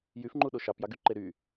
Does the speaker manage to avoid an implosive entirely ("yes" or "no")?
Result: no